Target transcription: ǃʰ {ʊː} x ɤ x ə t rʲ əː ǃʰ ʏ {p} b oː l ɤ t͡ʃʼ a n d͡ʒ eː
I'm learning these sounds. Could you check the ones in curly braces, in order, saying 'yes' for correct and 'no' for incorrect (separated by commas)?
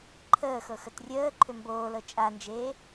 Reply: no, no